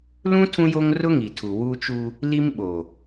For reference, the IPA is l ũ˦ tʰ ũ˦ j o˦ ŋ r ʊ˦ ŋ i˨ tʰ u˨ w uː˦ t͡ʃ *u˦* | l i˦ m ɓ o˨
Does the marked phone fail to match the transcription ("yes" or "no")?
no